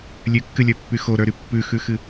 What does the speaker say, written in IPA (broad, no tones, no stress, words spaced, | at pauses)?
lʲʉkːɨlʲə˞pːy xoɾə˞ɾy pːʉxʉxɨ